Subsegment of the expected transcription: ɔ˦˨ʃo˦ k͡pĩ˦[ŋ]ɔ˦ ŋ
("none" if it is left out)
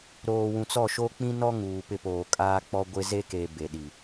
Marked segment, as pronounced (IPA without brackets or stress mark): n